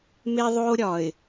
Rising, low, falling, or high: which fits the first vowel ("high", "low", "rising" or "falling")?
high